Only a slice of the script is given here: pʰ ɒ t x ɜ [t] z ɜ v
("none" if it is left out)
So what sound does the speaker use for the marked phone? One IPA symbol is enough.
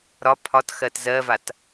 t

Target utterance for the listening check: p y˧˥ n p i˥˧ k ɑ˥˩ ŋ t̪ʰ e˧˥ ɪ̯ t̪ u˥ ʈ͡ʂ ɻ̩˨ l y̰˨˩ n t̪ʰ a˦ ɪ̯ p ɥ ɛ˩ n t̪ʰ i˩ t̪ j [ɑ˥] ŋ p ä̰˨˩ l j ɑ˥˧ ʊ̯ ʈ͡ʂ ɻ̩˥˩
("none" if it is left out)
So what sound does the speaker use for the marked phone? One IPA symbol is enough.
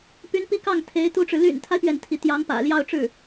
ɑ˧˥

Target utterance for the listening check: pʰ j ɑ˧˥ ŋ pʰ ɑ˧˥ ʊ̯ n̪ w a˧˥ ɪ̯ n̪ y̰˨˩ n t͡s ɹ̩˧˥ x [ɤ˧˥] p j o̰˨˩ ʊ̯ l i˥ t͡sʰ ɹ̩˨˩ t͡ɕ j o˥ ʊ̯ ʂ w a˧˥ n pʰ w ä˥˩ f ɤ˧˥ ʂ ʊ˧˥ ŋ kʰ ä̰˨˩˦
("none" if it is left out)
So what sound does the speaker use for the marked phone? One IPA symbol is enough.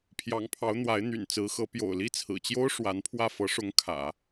ɤ˧˥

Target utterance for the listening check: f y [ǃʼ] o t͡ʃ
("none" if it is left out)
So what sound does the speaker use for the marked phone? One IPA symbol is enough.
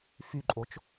ǃʼ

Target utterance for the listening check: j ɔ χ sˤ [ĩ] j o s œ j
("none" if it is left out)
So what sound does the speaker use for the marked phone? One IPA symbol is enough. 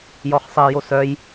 i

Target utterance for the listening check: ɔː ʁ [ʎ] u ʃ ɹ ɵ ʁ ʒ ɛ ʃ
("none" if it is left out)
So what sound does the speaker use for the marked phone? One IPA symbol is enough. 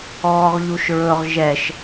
ʎ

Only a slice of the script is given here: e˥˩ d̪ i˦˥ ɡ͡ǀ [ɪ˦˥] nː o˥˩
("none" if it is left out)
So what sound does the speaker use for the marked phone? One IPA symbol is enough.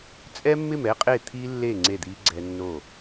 ɛ˦˥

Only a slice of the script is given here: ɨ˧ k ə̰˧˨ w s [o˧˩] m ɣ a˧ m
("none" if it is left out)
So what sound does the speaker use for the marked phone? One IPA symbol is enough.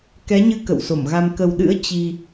o˧˩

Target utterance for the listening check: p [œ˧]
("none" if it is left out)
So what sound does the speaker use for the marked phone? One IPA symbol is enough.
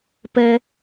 ɛ˧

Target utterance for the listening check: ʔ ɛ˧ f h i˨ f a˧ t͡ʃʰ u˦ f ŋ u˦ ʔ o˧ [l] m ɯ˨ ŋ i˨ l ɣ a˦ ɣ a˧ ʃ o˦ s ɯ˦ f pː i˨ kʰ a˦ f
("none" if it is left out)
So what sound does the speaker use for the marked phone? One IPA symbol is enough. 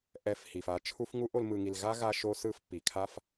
l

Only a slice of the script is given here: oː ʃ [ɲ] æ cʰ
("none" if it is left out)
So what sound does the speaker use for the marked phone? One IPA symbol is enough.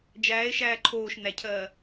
n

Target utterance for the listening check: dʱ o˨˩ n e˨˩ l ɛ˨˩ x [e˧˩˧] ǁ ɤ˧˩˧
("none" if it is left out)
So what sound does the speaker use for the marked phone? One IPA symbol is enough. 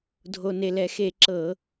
e˧˩˧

